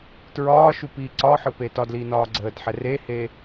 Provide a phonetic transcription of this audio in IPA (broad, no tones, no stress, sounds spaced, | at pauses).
t ɹ ɒː ʃ u p iː ǀ ɒ ħ ɯ p e t ɒ d l iː n ɒː ɡ͡ǀ əː d ħ ɛ r e h e